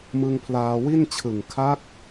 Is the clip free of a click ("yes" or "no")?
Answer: yes